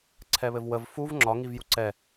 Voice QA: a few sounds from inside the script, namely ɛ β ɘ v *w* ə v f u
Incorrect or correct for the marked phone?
correct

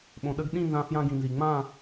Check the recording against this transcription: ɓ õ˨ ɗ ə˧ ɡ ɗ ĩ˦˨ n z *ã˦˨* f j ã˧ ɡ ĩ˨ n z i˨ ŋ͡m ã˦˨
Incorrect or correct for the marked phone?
incorrect: ã˧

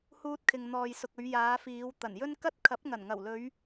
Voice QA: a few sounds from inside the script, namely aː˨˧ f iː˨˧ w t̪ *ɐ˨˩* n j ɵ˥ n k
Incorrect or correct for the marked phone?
correct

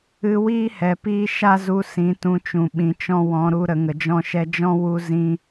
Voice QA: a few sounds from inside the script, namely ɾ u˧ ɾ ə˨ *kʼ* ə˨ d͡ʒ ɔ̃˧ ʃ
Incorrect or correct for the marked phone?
incorrect: ŋ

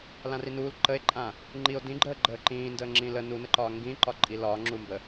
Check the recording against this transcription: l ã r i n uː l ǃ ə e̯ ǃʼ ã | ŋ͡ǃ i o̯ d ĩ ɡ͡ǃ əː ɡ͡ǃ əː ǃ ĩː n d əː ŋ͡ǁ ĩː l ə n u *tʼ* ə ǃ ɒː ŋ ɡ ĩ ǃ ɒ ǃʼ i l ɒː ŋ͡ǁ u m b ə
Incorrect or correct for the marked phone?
incorrect: n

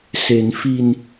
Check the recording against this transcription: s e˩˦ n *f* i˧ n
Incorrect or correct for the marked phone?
correct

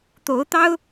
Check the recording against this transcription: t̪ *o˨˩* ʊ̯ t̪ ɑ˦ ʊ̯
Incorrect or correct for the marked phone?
incorrect: o˨˦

